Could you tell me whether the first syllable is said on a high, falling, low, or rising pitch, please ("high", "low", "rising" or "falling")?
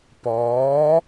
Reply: rising